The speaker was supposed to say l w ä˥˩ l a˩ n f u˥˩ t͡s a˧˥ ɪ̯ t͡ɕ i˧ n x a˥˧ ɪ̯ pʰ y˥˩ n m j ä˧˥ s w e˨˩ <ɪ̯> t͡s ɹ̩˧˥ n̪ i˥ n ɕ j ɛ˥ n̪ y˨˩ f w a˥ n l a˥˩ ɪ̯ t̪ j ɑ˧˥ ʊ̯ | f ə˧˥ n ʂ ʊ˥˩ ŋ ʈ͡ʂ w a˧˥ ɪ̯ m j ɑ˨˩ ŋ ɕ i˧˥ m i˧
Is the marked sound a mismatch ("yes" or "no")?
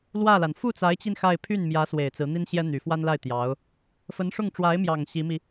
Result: no